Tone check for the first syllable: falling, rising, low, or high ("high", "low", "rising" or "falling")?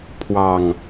low